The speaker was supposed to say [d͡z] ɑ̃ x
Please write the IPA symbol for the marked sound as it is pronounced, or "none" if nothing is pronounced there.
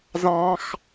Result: z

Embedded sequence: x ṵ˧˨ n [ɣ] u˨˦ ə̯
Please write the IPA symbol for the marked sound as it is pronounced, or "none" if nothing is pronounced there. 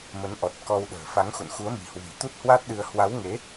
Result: x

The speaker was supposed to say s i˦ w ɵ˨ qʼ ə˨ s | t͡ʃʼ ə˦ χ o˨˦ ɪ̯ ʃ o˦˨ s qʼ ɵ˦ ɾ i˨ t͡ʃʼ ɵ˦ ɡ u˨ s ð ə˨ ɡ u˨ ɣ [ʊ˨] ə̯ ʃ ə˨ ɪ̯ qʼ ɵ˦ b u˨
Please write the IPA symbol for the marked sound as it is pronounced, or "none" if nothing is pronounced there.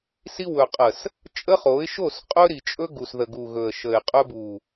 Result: ɵ˨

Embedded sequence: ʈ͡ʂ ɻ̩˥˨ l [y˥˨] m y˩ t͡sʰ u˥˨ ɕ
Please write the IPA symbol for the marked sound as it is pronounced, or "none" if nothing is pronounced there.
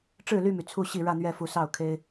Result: y˥˨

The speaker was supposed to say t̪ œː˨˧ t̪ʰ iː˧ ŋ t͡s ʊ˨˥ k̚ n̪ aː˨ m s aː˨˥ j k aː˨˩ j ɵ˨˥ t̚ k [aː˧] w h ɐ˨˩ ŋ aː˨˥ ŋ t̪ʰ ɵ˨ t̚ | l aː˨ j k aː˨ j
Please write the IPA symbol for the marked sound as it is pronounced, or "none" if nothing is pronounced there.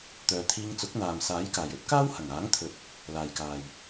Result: aː˥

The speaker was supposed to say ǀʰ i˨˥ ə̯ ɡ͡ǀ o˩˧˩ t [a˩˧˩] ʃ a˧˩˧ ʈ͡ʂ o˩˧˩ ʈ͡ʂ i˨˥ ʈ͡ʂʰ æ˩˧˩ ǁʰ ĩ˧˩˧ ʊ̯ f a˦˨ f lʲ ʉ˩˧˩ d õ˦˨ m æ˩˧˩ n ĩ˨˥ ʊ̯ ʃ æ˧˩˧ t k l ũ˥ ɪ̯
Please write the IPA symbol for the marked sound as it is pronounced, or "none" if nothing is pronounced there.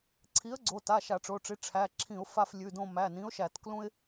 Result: a˩˧˩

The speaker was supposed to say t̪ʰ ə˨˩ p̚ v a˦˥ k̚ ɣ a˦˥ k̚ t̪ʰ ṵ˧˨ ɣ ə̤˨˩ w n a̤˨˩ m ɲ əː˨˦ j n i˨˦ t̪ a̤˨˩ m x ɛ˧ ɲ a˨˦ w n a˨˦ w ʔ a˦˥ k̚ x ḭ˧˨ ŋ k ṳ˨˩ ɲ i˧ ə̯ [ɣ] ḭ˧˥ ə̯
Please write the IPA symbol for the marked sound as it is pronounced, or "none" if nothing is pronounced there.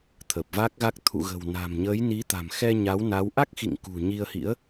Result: h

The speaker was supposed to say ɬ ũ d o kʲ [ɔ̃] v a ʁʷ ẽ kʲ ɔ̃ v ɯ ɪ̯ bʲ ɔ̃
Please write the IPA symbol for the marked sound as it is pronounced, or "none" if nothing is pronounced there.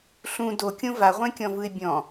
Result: õ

